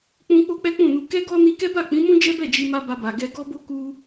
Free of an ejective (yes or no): yes